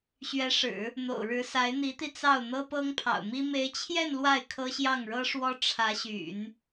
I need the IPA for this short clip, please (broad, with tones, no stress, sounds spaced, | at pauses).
ɕ ɥ ɛ˧˥ ʂ ɻ̩˨˩˦ | n̪ o̰˨˩ ʊ̯ ɻ ɻ̩˧˥ s a˧˥ ɪ̯ n̪ i˧˥ t̪ i˧ t͡s ɑ˥˩ ʊ̯ n̪ ɤ˥ p ɤ˥ ŋ pʰ ɑ̰˨˩ ʊ̯ m i˥ m e˧˥ ɪ̯ t͡ɕʰ j ɛ˥˧ n l w a˥˩ ɪ̯ kʰ ɤ˥ ɕ j ɑ˥˩ ŋ ɻ ɤ˥ ʂ w ɔ˥ ʈ͡ʂʰ ä˧˥ ɕ y̰˨˩˦ n